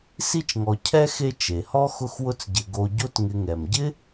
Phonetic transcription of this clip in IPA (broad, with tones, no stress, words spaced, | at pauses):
si˦t͡ʃŋɔ˨ cʰɛ˥xe˦ t͡ʃe˩hɔ˥ xʊ˦xwʊ˦t͡sɟɪ˨ ɡo˨ ɟo˦tŋɪ˨ŋɛ˩mɟɪ˥